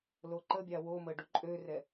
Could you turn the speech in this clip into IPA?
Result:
l o ǃ ə bʲ a w o m ə ɖ u ǃʼ ø r ɛ

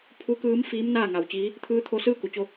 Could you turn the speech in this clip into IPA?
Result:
pʰ u˧˥ k ɯː˧˥ m f iː˧˥ m n aː˥˨ ŋ a˩ w t͡ɕ iː˧˥ | t̪ʰ ɯː˧ t̪ʰ o˧ s ɯː˥˨ k u˩˧ t͡ɕ o˧

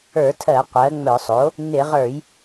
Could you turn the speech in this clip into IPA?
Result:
ə˞˧˩˧ tʰ ɜ˧˩˧ qʷ ɜ˩˥ ŋ͡m œ˧˩˧ sˤ o˩˥ | n ɪ˧˩˧ ʁ ə˞˧˩˧ j

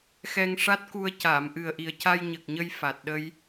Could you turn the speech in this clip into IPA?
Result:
x ɛ˧ ŋ ʂ a˦˥ t̚ k u˧ ə̯ c aː˨˩˨ m ʔ ɨ˨˩ ə̯ ʔ i˨˩ ə̯ c a˧ j ɲ ə˨˩ k̚ ɲ ə˧ j f a˨˩ t̚ ɗ ə˧ j

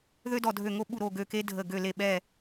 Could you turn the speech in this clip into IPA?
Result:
ð ø˦ d ɔ˧˩ dʱ ø˧˩ ŋ o˦ ɓ u˧˩ ɾ o˧˩ ɡ ø˧˩ k e˦ dʱ ə˧˩ ɡ ø˧˩ l e˧˩ ɓ ɛ˧˩

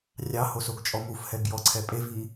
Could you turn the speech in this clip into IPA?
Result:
rʲ ɑ h o s o ɡ t͡ʃʼ ɔ m u f h ɛ ɡ j ɔ ǀʰ ɛ pʼ e v i

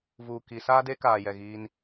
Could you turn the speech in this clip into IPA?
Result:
v uː˨ k i˨˦ s aː˦ d e˦ k aː˨ j ɛ˨ ɣ iː˦ n

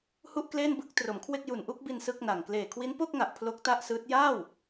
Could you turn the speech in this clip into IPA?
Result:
h u˥˩ ʔ k l eː˥˩ n b ɯ˥˩ k̚ t r o˩˦ m kʰ w e˥˩ k̚ j u˨˩ n ʔ u˥˩ k̚ b i˧ n s ɯ˥˩ k̚ n a˨˩ ŋ k l eː˨˩ kʰ w i˦˥ n p o˥˩ k̚ ŋ a˨˩ ʔ pʰ l o˦˥ k̚ t a˥˩ ʔ s ɯː˦˥ t̚ j aː˥˩ w

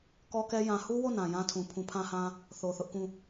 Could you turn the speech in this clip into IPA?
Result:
k ɔ˦ k ɛ˦ j ã˨ h u˦ w o˦˨ n ã˨ j ã˦ tʰ ũ˨ pʰ ũ˨ pʰ ã˦ h ã˦ | θ o˨ θ ʊ˦ ʔ k ũ˦˨

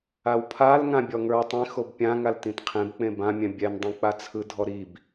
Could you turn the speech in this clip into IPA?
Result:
a w pʰ a l ŋ ã bʲ ɔ ŋ ə˞ w tˤ ĩ x o b pʲ ã ŋ a l t ĩ t qʰ ẽ b k͡p ẽ b ã mʲ ɛ̃ bʲ ɛ n dˤ ĩ k͡p a t͡sʰ ɯ dʱ ɔ ɾ i b

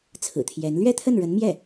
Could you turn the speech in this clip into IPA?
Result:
t͡sʰ ɹ̩˨˩ t̪ʰ j ɛ˧˥ n l ɥ ɛ˥˧ t̪ʰ ə˥˩ n ɻ ə˧˥ n m j ɛ˥˩

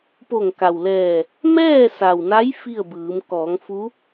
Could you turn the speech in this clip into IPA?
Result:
p o˧˩ ŋ k a˩ w l ɛː˧˩ | m ɛː˥˨ s a˩ w n a˧˥ j f i˥˨ ə̯ b ɯː˩˧ m k ɔː˩˧ ŋ f u˧˥

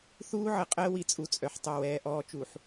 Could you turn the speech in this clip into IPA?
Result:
θ uː˦ ʕ ə˨ qʼ əː˦ w i˨ t͡sʼ u˦ t͡sʼ œ˨ ħ tˤ œ˦˨ w ɛː˦ ʔ ɔː˦ t͡ʃ u˨ ħ

